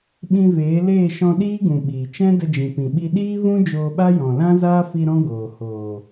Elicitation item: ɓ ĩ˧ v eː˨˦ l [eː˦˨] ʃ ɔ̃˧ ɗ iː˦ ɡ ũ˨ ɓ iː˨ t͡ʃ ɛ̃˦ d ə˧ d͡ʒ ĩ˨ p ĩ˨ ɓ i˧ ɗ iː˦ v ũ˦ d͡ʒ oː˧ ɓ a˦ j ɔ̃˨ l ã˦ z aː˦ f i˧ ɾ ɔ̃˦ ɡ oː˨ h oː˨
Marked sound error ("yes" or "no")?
no